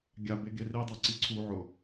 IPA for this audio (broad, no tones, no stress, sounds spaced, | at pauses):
ɡʲ a b e ɡ e r i dˤ a ǀ i ǀʰ u ʕ ʊ